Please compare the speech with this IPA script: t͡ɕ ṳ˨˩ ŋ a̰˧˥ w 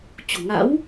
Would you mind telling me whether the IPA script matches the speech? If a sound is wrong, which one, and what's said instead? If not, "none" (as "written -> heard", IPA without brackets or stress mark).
none